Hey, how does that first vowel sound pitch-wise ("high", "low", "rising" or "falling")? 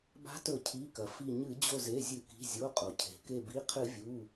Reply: rising